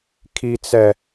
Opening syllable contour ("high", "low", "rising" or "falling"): high